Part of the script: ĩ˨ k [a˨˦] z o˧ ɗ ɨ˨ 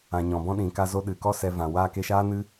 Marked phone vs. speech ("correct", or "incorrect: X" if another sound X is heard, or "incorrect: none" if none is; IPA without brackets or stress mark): incorrect: a˧